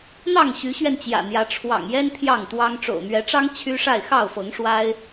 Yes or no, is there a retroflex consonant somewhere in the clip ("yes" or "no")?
yes